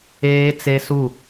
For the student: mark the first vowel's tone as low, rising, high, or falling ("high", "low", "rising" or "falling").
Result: high